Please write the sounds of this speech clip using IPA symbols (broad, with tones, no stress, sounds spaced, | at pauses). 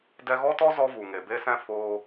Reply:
d ɛ˧ ɣ ɔ˦ t ɔ˦ z ɔ˦ v u˨ ŋ e˨ b e˦ s ɛ̃˦ f oː˧